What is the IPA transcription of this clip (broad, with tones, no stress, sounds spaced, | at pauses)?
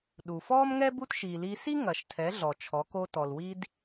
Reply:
ɗ u˩ f ɔː˥ m ŋ ɛ˥ b u˥ t ʃ iː˩ l iː˧ s i˥ ŋ ɐ˩ ʃ tʰ ɛ˩˧ ɮ ɔ˩ t͡ʃʰ ɔ˩˧ k o˧ t ɔ˩ l w i˧ d